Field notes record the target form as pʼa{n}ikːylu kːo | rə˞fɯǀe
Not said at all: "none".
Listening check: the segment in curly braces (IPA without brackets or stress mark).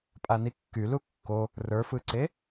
n